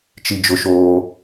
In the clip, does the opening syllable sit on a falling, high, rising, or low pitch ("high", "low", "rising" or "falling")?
high